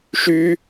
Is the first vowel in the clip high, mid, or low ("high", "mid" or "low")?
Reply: high